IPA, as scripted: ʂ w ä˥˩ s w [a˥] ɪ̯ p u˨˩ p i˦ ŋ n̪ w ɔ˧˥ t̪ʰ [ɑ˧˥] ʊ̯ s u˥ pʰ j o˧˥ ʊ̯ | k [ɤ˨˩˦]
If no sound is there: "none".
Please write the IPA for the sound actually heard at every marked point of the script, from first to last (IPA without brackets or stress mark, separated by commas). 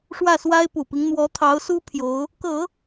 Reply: a˥, ɑ˧˥, ɤ˨˩˦